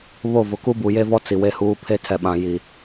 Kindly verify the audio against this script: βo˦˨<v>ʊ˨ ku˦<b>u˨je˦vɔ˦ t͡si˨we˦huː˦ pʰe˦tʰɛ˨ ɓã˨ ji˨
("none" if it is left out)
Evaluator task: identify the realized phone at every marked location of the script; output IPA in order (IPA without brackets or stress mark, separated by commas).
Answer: v, b